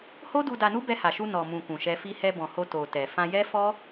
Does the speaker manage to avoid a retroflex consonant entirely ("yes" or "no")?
yes